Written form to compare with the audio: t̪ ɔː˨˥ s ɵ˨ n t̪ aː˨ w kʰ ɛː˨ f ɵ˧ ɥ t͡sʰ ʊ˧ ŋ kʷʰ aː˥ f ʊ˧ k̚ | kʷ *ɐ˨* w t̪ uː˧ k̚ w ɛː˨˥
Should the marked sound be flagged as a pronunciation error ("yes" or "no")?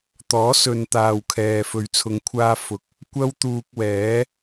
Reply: yes